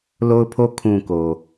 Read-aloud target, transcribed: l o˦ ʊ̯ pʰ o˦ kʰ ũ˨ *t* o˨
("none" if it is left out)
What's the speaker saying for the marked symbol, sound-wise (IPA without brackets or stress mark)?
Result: k